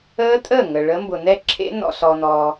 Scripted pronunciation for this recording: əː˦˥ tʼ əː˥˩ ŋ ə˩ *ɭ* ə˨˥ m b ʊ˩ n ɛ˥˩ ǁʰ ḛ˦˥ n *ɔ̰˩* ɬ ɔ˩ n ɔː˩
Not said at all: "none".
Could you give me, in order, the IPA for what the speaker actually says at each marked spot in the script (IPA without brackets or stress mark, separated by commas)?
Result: ɭ, ɔ̰˩